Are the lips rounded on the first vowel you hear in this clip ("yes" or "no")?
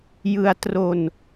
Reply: no